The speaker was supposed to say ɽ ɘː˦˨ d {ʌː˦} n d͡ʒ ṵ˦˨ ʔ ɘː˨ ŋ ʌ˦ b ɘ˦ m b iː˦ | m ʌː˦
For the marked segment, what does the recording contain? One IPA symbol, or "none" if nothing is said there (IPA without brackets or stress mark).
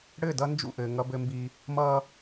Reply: ʌ˦